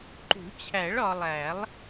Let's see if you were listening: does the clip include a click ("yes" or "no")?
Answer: yes